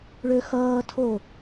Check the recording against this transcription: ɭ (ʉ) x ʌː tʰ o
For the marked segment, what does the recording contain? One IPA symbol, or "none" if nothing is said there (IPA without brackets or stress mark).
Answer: ø